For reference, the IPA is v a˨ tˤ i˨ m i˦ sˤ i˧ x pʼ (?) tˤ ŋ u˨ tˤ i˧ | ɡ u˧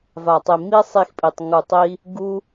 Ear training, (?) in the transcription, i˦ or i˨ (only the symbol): i˨